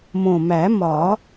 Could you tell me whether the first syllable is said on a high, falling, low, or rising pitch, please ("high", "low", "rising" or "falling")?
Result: low